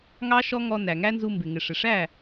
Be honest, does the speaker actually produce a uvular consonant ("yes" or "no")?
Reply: no